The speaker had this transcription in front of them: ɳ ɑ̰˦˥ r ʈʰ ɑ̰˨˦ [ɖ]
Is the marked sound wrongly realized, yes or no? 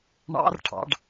no